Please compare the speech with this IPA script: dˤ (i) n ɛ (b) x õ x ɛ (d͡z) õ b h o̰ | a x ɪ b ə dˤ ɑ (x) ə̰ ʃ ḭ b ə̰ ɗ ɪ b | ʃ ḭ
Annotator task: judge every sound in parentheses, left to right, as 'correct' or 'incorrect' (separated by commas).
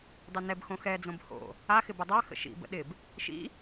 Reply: incorrect, correct, correct, correct